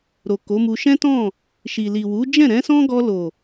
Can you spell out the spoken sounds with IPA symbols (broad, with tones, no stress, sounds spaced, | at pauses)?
ɾ o˨ k o˨˦ m u˧ ʃ ɛ̃˦ t ɔ̃˦˨ | ʃ i˨ l i˨ w u˨˦ d͡ʒ ɛ̃˦˨ ɾ ɛ̃˨˦ s ɔ̃˦ ɡ ɔ˧ l o˨